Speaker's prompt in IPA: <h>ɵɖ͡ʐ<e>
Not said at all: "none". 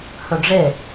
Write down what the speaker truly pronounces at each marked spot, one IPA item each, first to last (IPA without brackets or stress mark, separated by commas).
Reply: h, e